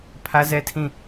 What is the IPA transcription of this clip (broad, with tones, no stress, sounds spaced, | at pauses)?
pʰ ä˦ z ɛ˦ tʰ ĩ˦˨